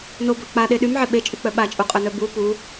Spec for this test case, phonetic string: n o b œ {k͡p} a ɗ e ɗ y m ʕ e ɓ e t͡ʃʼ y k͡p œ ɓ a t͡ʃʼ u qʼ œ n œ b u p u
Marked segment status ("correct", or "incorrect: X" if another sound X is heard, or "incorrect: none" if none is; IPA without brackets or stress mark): correct